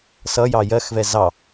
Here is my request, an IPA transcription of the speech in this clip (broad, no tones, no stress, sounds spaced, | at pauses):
s ʌ j ɑ j ɜ x v ɛ z ɑ